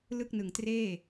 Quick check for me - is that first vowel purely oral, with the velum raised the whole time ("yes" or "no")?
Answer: yes